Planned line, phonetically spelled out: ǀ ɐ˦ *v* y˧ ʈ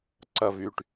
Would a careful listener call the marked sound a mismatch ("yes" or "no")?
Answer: no